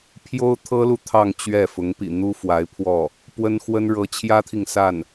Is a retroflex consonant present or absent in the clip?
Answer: present